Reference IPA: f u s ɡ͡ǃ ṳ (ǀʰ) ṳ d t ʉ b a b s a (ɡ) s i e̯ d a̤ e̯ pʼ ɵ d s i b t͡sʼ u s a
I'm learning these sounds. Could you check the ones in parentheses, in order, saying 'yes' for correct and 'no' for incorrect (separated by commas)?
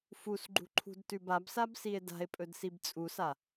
no, no